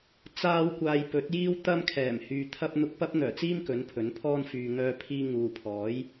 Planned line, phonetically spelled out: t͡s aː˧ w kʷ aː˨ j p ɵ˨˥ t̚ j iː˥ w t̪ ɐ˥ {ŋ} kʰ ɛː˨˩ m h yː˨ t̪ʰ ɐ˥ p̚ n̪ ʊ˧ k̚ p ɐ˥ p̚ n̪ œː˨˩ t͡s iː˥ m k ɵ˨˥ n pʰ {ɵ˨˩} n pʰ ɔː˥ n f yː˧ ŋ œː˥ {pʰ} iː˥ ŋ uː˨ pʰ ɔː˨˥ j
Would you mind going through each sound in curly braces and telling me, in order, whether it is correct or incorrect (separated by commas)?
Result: incorrect, incorrect, correct